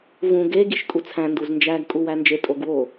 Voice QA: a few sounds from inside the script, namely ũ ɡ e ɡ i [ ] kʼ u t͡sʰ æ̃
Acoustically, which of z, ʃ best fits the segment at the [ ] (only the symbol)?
ʃ